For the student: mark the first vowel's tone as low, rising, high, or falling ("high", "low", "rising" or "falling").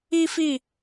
high